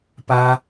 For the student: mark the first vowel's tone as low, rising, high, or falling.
high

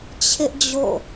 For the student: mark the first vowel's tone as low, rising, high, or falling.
high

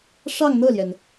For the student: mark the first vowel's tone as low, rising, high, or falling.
falling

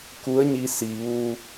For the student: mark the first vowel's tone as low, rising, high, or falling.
rising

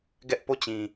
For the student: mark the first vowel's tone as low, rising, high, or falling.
high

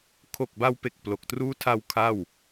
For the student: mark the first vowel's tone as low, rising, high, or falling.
low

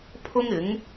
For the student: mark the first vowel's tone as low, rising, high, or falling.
high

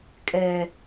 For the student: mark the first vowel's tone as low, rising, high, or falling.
low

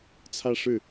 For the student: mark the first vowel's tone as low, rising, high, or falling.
falling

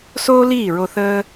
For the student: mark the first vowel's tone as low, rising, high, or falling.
high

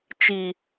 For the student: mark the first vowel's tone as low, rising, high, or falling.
high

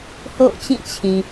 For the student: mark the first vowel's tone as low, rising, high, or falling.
falling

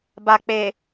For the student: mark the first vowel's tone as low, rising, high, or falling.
low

